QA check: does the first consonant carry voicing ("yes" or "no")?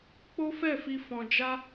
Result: no